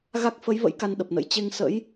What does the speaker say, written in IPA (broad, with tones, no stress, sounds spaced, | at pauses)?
ɣ a˦˥ k̚ f ə˨˦ j v ə̰˧˥ j k a˧ n ɗ ə˨˩ p̚ n ə̰˧˥ j t͡ɕ e˧ ŋ s ə̰˧˥ j